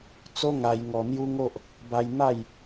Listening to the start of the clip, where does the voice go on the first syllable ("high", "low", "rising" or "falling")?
high